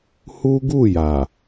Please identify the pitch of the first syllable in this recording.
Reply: high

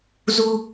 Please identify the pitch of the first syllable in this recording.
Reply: high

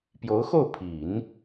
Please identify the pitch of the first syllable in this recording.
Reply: rising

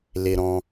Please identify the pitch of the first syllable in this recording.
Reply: low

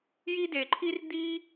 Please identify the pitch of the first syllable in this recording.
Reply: high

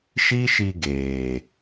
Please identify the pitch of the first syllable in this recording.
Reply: high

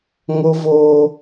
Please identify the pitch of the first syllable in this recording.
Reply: high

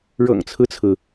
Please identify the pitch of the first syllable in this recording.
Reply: low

